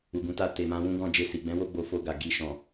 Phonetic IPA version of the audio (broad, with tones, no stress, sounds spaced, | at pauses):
u˨ ɡ ũ˨˦ t a˧ t e˨ m ã˧ w ũ˦ ɡ ɔ̃˦˨ d͡ʒ e˧ s i˨ ɡ͡b ɛ̃˨˦ w o˦ ɡ͡b o˧ f o˧ ɡ a˨ ɡ i˧ ʃ ɔ̃˨